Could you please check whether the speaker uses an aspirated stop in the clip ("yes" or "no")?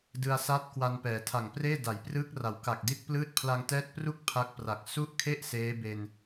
yes